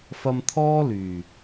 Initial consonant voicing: voiceless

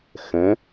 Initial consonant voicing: voiceless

